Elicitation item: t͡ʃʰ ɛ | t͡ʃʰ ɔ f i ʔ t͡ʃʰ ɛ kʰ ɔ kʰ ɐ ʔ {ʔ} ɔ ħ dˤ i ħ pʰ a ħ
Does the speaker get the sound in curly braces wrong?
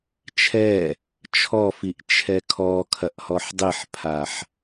yes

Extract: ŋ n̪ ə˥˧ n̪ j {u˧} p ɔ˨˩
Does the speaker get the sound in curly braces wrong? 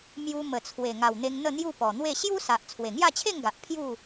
yes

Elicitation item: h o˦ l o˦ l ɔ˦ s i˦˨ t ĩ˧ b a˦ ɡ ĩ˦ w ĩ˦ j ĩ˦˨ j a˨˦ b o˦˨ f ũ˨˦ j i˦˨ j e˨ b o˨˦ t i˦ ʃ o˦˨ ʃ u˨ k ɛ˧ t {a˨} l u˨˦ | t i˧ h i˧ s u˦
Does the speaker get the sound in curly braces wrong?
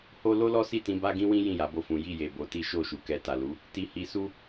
no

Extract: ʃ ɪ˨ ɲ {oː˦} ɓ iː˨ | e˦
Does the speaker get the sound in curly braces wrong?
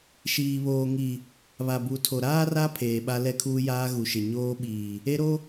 no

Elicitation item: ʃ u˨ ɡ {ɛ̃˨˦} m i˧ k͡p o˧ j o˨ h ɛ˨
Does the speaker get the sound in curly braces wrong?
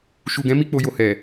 no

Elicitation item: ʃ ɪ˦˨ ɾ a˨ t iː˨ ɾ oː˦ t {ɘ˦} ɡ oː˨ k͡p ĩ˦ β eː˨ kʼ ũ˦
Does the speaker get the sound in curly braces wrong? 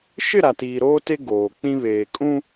yes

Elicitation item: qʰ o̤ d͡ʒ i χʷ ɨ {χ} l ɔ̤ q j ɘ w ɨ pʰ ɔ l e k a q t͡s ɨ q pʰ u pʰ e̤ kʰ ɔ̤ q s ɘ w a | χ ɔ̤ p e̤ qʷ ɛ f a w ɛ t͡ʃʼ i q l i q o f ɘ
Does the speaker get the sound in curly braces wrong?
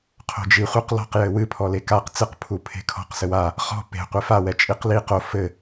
yes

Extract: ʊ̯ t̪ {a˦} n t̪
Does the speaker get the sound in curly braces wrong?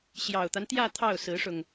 no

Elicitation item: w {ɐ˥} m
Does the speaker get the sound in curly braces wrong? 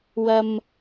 yes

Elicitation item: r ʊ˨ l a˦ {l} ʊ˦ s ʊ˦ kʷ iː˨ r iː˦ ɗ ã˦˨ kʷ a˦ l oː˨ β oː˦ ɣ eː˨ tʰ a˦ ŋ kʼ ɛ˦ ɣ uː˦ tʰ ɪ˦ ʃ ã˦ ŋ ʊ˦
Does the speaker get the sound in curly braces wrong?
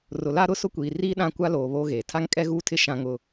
yes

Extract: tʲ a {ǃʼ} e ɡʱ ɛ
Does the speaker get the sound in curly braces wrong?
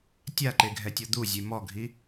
yes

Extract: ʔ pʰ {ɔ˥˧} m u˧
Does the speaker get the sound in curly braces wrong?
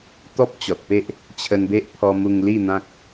yes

